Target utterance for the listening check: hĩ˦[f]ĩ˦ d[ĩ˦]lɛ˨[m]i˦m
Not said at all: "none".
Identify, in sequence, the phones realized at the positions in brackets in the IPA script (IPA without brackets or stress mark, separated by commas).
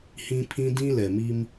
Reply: pʰ, ĩ˦, m